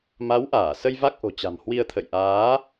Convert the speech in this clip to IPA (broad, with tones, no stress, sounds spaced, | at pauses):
m a˨˦ w ʔ aː˧˩ s ə˧ j v a˦˥ k̚ ʔ o̤˨˩ t͡ɕ a̤˨˩ m h w i˧ ə̯ t̪ʰ ə̰˧˨ j ʔ aː˨˦